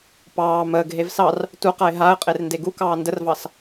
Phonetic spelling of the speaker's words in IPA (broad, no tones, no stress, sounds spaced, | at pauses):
p ɑː m əː ɡ ɦ e v s ɑ r | t u q a ɪ̯ ɦ a ə̯ qʼ e r n d e ɡ u k ɑː n d ə r v ɑ s